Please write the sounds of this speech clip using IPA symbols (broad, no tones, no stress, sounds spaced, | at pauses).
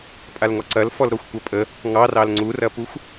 pʼ a l ŋ ɔ ǀ ɐ l f ɔ l ɾ ɔ xʷ kʷ ɐ pʼ ə | ŋ ɑ r ɑ l ŋ͡ǀ u r ɐ p u xʷ